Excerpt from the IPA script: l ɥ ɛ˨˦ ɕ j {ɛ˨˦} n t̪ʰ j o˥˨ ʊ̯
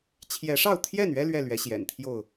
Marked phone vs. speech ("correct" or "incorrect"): incorrect